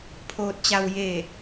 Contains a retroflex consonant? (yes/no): no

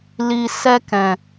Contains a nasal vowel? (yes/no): yes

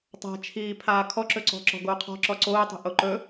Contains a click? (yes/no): yes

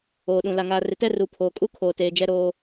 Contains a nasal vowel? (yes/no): yes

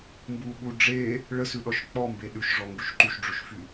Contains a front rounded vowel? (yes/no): yes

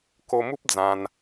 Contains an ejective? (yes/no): no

